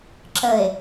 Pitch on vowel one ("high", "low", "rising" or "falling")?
low